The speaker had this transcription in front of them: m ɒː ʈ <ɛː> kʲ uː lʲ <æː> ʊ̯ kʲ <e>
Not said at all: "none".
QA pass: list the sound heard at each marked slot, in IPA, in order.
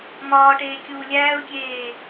eː, æː, eː

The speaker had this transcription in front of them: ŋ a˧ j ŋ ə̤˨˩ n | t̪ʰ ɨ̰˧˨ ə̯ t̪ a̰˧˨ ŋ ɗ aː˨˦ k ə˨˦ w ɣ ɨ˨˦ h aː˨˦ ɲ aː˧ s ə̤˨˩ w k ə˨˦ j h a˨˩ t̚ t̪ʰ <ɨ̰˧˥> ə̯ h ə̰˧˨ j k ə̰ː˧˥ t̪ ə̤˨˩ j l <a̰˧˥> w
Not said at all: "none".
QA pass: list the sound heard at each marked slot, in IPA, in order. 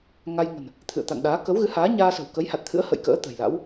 ɨ̰˧˥, a̰˧˥

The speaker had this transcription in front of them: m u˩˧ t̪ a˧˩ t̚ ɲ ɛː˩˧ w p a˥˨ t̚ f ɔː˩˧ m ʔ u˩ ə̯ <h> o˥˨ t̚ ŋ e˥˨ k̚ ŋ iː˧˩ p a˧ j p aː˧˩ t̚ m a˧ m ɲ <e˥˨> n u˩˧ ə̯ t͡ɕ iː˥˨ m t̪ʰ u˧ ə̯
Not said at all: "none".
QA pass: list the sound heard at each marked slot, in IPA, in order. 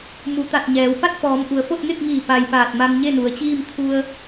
f, e˥˨

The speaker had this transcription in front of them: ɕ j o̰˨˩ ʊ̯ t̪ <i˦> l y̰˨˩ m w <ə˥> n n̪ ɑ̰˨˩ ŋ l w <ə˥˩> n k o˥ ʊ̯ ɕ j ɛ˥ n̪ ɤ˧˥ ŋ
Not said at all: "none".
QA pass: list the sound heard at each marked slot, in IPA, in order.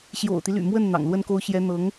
i˦, ə˥˩, ə˥

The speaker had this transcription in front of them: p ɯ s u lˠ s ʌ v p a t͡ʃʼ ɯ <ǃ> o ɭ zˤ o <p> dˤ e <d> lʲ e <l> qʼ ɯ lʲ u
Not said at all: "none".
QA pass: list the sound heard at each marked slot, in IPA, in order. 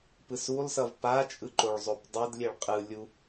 ǃ, p, d, ɭ

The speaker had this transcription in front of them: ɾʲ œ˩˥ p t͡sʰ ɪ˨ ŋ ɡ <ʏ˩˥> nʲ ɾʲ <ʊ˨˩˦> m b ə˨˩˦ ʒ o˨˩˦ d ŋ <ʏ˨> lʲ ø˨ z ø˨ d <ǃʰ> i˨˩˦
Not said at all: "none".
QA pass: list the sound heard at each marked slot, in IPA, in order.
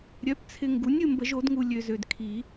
u˩˥, ʊ˨, u˨, kʰ

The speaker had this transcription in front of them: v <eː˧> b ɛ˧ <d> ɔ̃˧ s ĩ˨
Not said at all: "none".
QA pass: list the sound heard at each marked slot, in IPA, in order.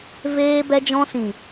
eː˧, d͡ʒ

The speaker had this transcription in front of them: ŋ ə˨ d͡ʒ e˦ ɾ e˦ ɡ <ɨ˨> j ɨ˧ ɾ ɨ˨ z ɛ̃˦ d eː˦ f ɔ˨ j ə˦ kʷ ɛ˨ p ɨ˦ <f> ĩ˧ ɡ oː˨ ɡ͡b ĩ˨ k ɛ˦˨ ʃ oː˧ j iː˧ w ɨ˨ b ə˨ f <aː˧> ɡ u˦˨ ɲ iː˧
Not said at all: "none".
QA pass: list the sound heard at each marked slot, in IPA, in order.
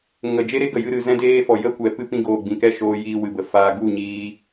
ə˨, p, aː˧

